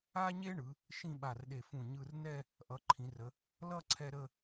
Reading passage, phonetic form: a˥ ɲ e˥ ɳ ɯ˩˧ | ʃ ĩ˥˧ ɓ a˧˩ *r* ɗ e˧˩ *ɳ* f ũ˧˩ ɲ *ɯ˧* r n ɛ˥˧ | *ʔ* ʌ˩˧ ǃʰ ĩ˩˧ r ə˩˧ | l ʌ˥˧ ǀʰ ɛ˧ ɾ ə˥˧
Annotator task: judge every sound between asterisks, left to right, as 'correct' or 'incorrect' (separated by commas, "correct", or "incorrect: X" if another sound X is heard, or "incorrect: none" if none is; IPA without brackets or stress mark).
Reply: correct, incorrect: none, correct, correct